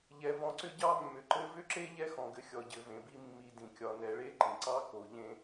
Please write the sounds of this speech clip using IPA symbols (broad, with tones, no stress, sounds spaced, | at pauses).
ʎ ɛ˨ v ɔ̃˨ ǀ ʏ˦ ɟ ɑ˥ mː ʏ˩ ǃ ɘ˦ v ʏ˥ ǁ e˥ ʎ ɛ˥ x ɔ̃˩ ɡ ɘ˨ xʲ ɔ˩ ɟ ɘ˨ v ẽ˩ b i˦ mː i˨ d ĩ˩ kʲ ɒ˨ n ɛ˨ ɭ e˥ ǃ ĩ˩ ǀ ɑ˥ k o˨ ʎ ẽ˦